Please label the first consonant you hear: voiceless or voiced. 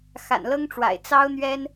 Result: voiceless